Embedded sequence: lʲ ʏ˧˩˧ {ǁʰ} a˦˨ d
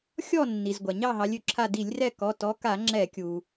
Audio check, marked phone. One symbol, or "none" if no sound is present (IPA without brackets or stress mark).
ǁʰ